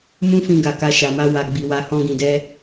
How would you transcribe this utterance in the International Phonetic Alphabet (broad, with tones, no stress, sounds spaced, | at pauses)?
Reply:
m ũ˦ f ĩ˧ ɡ a˨ k a˧ ʃ a˨ m a˧ w a˨ ɡ͡b i˨ w a˧ h ɔ̃˧ ɡ ĩ˨ d ɛ˧